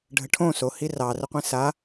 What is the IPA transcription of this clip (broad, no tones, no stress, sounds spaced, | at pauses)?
ɖʱ ə ʈʰ õ s o h i r ɑ r ə qʷ ĩ s a